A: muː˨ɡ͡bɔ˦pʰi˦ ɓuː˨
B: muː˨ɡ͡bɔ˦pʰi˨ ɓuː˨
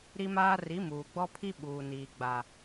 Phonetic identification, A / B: A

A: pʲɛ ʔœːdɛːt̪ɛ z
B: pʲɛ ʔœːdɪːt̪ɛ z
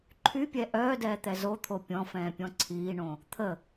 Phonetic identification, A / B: A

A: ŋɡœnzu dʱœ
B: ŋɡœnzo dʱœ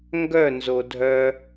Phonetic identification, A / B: B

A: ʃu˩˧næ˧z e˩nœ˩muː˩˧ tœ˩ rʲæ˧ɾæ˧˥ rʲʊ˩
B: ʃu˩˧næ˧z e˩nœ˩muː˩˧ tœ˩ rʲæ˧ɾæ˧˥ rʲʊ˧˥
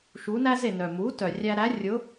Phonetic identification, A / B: B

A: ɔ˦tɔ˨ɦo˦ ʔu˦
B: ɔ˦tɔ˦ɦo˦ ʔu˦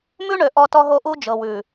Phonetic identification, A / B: B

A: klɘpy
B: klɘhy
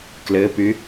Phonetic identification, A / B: A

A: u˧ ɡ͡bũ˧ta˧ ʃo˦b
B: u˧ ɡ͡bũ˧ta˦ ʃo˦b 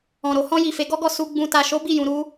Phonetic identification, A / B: A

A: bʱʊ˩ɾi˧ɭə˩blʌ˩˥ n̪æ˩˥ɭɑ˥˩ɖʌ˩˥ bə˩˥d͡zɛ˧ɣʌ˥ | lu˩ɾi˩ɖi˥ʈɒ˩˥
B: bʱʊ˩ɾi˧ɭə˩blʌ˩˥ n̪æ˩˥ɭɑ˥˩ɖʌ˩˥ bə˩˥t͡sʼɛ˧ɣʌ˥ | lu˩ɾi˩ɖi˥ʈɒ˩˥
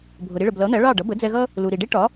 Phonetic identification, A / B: A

